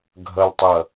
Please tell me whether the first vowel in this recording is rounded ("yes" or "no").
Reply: no